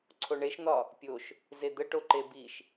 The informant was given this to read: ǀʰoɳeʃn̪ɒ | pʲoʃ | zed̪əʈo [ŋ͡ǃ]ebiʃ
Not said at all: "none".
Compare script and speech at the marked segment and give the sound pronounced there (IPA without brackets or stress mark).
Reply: ǃ